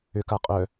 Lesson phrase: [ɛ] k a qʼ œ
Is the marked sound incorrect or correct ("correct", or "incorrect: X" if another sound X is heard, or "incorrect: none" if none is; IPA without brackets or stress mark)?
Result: incorrect: ʏ